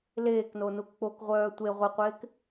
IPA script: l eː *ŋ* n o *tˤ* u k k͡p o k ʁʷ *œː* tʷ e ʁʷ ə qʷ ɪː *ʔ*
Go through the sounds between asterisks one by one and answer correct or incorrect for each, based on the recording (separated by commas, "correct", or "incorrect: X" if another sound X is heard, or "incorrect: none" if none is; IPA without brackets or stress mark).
incorrect: k, incorrect: n, correct, incorrect: k